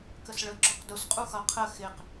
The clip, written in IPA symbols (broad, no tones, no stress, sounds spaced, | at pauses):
k ə s ɭ ə ɡ͡ǁ ɔ q d ʊ s qʼ u x ʌ qʰ ə x ɪ q